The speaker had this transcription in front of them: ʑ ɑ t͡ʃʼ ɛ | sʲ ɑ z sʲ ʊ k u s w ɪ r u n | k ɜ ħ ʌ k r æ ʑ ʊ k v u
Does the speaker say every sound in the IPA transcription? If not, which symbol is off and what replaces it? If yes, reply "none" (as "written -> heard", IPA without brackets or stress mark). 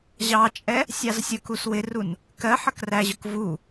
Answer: none